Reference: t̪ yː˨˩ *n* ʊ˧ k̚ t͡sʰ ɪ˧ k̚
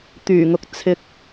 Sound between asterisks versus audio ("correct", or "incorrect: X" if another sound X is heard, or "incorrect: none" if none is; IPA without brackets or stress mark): incorrect: ŋ